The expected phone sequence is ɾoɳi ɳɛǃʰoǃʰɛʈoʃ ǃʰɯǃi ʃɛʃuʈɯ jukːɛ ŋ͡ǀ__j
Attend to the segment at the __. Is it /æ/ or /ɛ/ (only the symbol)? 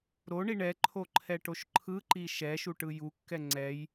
ɛ